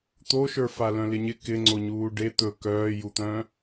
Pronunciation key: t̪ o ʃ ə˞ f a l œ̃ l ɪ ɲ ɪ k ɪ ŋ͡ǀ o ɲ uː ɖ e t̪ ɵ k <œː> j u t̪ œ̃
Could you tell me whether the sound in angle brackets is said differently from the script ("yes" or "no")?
no